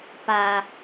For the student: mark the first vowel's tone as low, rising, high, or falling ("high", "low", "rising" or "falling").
low